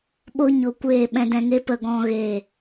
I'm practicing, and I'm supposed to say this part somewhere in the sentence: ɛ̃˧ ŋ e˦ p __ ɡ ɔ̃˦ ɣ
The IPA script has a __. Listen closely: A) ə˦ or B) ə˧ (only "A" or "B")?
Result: B